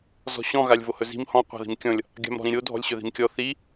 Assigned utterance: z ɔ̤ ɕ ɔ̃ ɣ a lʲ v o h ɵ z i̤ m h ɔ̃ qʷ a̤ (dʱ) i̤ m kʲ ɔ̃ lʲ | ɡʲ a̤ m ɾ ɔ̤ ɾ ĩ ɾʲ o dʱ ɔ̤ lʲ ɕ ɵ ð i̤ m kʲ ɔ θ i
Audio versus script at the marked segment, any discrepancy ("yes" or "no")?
yes